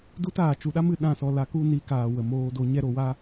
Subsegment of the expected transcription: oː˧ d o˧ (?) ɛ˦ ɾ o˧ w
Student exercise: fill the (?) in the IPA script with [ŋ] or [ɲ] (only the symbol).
ɲ